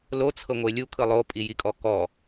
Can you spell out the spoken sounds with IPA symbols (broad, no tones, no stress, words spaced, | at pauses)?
lot͡sʰɤŋʷe lʲukʰɯ lˠopʼijikʼɔ kɔ